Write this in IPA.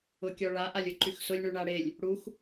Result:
ʊ kʲ ɔ ɭ a ʔ a lʲ ʊ ǃ y x s ʊ lʲ ɳ ʉ ɳ a ɽ e lʲ | ɽ u x

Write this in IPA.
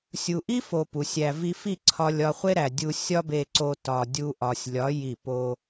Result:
sʲ u˨ ʔ i˦ f o˨ p u˨ sʲ æ˧ v i˧ f i˦˨ ǀʰ ɒ˧ lʲ ɒ˧ χʷ e˦ ɾ æ˨ dʲ u˧ sʲ ɒ˦ b e˧ ǀ o˧ t ɒ˨ dʲ u˧ ʔ ɒ˨ sʲ lʲ ɒ˨˦ j i˦˨ p o˧

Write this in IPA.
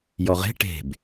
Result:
j ɔ ʁ e̤ ʈ e̤ b

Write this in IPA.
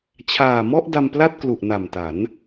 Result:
t͡ɕʰ aː˨˩ m ɔ˥˩ ʔ d a˧ m p l a˥˩ t̚ k l u˨˩ ʔ n a˨˩ m t a˩˦ n

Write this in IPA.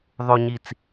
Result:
ðˤ o˨ ɲ i˨ t͡s

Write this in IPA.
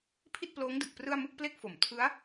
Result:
pʰ i˥˩ t̚ p l oː˦˥ ŋ d ɯ˨˩ k̚ p r ɯ˥˩ a̯ m ɯ˥˩ k̚ p l e˥˩ k̚ f o˩˦ m tʰ ɯ˦˥ a̯

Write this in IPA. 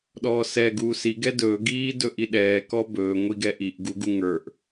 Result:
ɗ ɔː s ɛ ɡ uː s i ɡ ɛ d ɵː ɡ iː d ɵ ʔ i ɗ ɛː k ɔ b ɵː ŋʷ i ɡ ɛ ʔ i ʔ ɡ u ɡ u ŋ ə˞ ʔ

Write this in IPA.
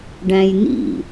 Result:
ɖ æ̃ j n ḭ

